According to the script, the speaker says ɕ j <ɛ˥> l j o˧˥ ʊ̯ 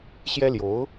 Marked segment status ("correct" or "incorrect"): correct